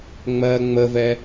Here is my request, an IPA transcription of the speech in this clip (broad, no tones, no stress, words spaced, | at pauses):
ŋ͡mɜ ŋ͡məvɛ